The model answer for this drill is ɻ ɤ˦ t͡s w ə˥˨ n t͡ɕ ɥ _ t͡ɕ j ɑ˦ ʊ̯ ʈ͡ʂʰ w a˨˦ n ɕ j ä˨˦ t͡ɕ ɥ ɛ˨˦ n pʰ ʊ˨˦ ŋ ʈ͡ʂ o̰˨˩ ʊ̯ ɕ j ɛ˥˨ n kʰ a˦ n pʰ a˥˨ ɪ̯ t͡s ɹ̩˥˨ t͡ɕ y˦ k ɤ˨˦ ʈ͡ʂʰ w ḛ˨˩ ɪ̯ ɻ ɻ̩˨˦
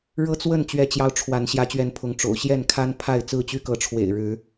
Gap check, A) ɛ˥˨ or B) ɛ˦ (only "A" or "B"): B